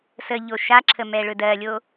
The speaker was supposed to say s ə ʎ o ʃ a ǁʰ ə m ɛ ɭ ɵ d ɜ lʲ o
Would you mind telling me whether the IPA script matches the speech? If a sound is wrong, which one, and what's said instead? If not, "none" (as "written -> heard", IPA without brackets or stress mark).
none